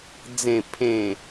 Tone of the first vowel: low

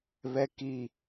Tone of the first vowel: high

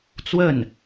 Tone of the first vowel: falling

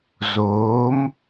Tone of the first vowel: rising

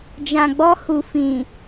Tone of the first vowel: low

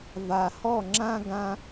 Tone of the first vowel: low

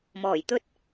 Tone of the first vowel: low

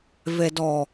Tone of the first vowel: low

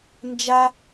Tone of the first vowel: high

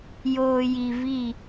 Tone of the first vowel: low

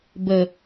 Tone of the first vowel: low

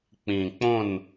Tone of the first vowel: low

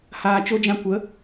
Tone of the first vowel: low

